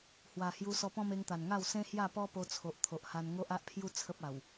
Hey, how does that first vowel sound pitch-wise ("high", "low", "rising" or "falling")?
low